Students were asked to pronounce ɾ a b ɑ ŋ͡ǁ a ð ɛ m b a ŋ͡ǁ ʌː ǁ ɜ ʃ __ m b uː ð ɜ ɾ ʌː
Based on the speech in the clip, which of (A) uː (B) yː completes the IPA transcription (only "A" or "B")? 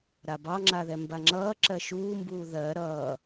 A